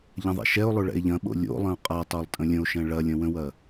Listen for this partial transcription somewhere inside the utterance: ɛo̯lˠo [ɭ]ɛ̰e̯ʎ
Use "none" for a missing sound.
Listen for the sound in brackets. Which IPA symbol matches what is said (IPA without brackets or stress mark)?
ɭ